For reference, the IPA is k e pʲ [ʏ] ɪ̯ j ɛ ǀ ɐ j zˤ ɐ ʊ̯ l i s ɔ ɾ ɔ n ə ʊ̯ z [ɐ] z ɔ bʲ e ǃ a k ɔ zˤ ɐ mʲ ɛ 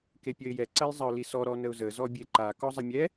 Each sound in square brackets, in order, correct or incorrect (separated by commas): incorrect, incorrect